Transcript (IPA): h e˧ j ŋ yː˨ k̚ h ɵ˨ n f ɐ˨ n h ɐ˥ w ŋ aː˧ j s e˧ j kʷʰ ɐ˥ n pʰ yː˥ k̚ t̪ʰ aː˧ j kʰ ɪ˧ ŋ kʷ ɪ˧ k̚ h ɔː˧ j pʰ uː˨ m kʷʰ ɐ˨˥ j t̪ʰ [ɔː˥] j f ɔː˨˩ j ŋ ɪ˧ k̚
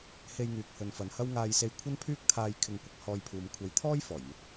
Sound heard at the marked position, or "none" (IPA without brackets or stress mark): ɔː˥